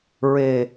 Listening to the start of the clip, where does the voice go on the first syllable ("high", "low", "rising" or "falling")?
low